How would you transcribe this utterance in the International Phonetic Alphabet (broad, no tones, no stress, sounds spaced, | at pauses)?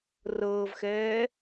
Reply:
r ɤː v x ɛː